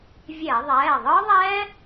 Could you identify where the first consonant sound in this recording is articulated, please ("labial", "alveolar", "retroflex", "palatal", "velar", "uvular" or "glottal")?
labial